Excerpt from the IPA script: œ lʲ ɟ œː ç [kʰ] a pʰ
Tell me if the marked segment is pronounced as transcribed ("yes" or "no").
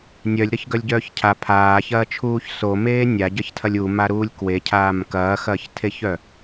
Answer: no